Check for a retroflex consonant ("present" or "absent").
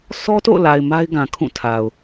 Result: absent